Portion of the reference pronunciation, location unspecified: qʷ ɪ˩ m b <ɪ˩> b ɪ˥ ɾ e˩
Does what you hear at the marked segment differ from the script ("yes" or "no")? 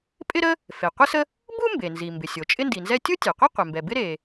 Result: yes